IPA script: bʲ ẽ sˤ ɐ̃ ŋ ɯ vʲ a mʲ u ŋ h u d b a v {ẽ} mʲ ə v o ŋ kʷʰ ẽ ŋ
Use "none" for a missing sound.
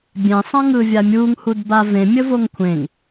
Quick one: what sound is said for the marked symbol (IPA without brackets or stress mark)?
ẽ